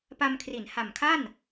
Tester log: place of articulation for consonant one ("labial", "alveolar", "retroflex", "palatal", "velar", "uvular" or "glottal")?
labial